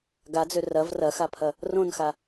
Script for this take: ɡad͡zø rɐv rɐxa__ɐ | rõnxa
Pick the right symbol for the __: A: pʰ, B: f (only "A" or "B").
A